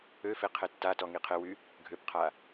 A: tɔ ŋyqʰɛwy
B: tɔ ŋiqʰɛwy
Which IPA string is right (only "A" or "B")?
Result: B